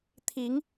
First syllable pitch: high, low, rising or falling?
rising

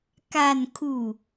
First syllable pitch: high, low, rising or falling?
falling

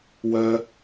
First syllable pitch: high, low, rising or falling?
high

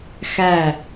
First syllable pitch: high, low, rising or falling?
falling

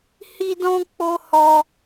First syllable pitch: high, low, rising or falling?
high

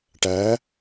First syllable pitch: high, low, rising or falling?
rising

